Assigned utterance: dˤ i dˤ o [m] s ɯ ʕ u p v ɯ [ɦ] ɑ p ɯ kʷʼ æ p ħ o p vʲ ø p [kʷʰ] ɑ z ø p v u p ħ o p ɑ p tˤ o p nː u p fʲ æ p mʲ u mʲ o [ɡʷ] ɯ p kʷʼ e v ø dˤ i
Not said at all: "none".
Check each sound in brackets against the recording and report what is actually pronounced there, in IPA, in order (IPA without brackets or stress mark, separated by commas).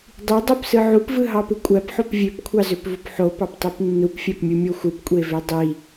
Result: p, ɦ, kʷʰ, xʷ